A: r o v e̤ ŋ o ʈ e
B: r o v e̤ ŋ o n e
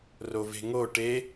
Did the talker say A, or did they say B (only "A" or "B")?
A